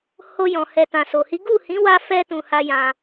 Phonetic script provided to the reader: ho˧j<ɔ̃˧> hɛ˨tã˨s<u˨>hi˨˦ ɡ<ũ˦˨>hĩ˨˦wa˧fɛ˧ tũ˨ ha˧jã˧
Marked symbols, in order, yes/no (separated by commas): no, no, no